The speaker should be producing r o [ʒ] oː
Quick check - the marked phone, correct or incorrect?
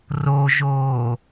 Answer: correct